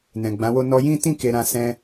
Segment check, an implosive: absent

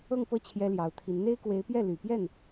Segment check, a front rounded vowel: present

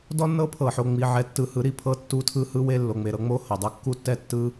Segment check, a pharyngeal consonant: present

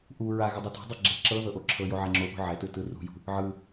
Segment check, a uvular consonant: absent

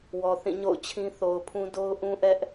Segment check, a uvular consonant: absent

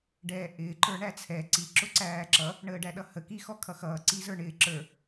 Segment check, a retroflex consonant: present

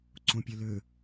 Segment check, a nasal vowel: present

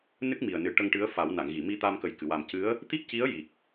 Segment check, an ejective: absent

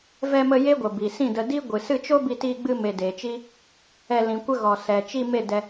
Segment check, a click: absent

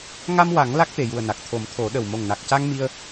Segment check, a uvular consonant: absent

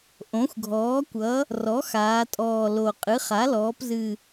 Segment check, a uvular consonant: present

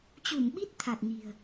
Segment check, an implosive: present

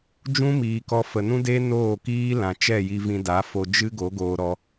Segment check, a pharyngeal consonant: absent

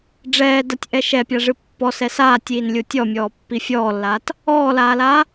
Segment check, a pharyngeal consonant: absent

